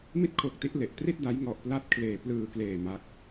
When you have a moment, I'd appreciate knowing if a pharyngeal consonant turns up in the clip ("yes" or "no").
no